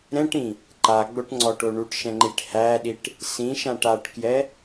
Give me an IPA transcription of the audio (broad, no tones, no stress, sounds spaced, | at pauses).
ɾ ɛ̃ ʈ ĩ | ǃ a ɡ͡b o ʈ ŋ͡ǀ ɔ ʈ o ɳ u ʈ ʃ ɛ̃ ŋ͡ǃ i ʈ h æ ɗ i ʈ | s ĩ ʃ ã ʈ a ʈ k j ɛ